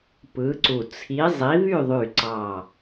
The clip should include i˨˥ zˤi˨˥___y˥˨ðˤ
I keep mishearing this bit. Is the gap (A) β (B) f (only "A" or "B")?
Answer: A